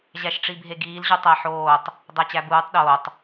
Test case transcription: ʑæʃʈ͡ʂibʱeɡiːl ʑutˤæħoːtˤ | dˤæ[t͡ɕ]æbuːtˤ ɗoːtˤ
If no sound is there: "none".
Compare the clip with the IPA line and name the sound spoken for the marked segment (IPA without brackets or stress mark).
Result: t͡ɕ